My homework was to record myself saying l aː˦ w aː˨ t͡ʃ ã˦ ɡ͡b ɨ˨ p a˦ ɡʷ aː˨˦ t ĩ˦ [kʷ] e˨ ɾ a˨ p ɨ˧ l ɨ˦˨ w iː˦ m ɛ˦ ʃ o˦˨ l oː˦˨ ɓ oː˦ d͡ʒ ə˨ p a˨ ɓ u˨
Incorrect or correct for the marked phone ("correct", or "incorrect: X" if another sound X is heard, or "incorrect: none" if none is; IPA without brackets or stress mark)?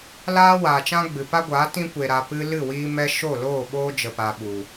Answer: correct